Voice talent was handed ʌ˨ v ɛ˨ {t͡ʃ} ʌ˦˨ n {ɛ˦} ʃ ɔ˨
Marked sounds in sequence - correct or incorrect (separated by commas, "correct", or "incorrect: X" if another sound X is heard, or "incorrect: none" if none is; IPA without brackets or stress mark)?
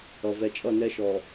incorrect: t͡ʃʼ, correct